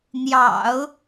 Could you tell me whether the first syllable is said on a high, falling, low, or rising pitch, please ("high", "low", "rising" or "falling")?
low